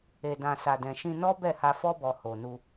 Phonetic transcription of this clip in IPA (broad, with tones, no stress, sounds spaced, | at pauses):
e˨ d ã˨ s a˨ d ɛ̃˨ ʃ ĩ˧ n ɔ˦ b ɛ˦˨ h a˧ f ɔ˦ b ɔ˧ h o˨ n u˧